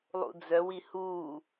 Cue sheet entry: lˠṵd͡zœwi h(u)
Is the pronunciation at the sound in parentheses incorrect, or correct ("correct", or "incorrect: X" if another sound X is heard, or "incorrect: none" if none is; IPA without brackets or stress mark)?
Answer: correct